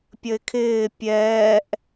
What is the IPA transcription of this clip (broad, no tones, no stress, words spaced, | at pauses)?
pʲəɪ̯kʰɪː pʲɛːʔ